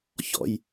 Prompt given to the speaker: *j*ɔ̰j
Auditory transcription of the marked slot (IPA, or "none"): ç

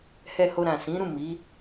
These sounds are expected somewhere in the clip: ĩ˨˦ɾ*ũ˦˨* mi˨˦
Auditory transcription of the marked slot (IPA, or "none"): ũ˦˨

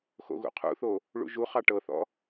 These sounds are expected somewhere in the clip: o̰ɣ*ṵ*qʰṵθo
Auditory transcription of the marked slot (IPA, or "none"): ṵ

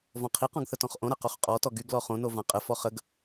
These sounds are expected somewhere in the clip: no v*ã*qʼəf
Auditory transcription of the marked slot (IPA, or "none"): ã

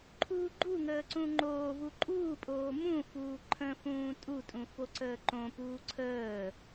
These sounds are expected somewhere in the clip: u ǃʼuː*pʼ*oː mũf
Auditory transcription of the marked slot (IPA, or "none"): pʼ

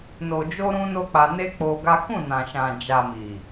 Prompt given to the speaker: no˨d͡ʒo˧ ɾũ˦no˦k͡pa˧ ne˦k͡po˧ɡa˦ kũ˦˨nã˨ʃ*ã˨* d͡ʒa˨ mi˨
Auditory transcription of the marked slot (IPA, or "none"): ã˨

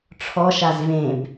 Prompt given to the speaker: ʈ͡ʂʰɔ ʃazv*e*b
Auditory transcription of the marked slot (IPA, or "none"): ẽ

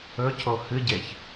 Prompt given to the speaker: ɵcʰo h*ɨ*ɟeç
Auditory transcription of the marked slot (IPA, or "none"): ɨ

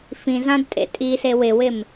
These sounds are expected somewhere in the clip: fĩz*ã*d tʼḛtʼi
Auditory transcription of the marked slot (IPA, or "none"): ã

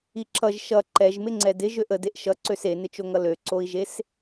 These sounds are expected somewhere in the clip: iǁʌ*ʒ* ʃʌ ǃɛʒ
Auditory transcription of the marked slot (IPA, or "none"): ʒ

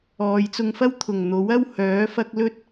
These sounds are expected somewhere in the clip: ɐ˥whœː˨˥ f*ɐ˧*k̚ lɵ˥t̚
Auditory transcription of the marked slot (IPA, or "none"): ɐ˧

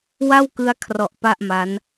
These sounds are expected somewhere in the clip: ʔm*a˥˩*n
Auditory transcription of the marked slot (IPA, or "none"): a˦˥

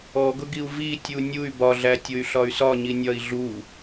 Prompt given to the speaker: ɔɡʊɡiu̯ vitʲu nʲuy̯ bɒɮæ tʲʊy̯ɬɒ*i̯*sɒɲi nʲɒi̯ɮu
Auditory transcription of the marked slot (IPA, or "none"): y̯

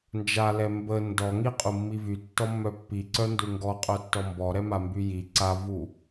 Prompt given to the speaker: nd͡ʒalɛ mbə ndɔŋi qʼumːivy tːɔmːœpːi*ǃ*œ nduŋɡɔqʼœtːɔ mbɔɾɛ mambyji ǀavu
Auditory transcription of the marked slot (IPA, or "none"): ǀ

